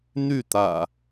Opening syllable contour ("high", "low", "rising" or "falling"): falling